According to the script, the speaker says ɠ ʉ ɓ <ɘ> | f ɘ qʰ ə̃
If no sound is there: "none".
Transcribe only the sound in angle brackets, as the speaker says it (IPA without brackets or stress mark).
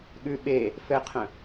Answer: e